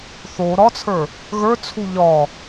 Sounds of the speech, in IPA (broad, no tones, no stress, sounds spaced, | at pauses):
θ o ɾ ɒ t͡sʰ ə˞ | ɣ ə˞ t͡sʰ u ʎ ɒ